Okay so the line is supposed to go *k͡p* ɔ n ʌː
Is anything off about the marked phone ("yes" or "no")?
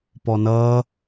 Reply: yes